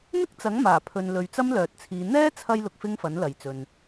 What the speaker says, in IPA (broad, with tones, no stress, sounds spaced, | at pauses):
n̪ ɪ˥ k̚ t͡s ɐ˨˥ ŋ m aː˨˩ pʰ ɵ˨ n l ɵ˨˧ ɥ t͡s ɐ˥ m l œː˨ t̚ t͡sʰ iː˨˧ n̪ ɛː˥ t͡sʰ ɐ˧ j l ʊ˧ k̚ f ɪ˥ ŋ f ɐ˨˥ n l ɐ˨ j t͡s ɵ˨ n